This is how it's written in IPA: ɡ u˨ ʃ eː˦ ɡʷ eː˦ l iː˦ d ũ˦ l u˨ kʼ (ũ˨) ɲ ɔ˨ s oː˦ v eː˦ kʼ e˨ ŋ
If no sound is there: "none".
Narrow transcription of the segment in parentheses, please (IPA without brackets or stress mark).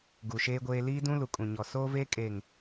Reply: ũ˨